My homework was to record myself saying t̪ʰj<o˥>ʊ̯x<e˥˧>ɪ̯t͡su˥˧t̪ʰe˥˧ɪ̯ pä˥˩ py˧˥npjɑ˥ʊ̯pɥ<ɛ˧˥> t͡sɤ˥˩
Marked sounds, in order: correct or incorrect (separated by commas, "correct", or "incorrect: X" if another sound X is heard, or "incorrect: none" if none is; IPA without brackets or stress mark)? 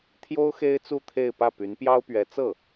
correct, incorrect: e˥, correct